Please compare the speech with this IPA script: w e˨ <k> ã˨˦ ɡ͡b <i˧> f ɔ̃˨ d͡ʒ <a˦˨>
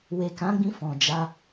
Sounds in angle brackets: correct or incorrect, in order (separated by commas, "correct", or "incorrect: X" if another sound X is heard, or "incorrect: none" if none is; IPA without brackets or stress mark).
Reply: correct, incorrect: ĩ˧, incorrect: a˧